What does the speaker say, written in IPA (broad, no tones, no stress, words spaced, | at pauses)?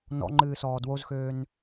nɔ̰ŋ͡ǃɨːsɔː dwozxøːn